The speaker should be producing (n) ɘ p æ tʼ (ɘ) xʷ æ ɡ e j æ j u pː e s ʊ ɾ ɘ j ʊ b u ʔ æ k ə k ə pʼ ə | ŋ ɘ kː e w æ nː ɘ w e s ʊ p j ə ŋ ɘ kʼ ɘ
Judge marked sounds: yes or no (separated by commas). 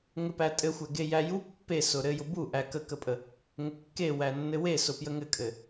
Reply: no, yes